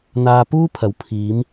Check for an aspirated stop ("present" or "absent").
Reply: present